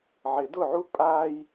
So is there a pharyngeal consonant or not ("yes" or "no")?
yes